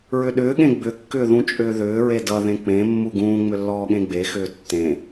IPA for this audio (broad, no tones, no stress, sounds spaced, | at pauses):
ɹ ʏ ɗ ʏː ɠ ẽ ɡ͡b ʏ kː ʏː ð ũ t͡ʃʼ ʏː ð ʏː ɹ e d ʌ ð ẽ k͡p ẽ mː u ɡ ũː ŋ͡m ʏ lː ɔː ɠ ẽ ɡ͡b e x ʏː tː ẽ